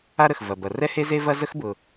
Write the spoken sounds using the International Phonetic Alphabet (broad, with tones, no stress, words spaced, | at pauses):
a˦ɾə˩xvɐ˩bɐ˩ rɛ˦ he˦ze˦vɐ˦ zə˥xbʊː˨